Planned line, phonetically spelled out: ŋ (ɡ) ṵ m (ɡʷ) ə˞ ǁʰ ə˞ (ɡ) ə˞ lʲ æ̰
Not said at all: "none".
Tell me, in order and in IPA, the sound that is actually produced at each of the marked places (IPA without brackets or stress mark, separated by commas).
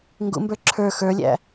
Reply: ɡ, b, x